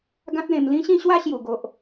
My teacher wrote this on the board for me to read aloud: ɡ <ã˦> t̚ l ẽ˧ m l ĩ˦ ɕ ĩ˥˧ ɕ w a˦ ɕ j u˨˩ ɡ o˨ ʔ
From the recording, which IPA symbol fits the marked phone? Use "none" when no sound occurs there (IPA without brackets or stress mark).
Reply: ã˦